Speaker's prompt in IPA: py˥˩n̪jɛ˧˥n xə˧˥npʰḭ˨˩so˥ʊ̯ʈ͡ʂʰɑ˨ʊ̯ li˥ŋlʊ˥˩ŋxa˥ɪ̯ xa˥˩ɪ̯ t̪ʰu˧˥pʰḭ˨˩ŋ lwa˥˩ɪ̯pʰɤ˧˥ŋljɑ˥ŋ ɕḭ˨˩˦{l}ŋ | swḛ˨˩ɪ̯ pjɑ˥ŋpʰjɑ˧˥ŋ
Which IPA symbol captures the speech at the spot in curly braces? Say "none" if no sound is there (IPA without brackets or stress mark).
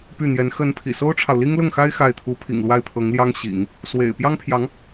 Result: none